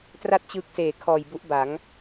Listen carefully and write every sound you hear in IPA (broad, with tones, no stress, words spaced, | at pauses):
tra˥˩t̚t͡ɕɯː˦˥k̚seː˨˩ kʰɔː˨˩jbu˦˥ʔba˩˦ŋ